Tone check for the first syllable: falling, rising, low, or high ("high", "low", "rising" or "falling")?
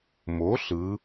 rising